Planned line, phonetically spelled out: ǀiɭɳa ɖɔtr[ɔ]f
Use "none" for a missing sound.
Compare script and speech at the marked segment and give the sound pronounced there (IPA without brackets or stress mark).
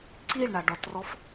ɔ